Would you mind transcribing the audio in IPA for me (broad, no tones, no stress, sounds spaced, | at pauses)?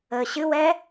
əː ɕ ɨ w ɛ